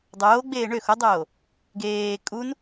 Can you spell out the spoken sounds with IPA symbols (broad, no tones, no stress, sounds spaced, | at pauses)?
dˤ oː ɡ͡b eː ɳ ø x o dˤ oː | ɡ eː kʼ u n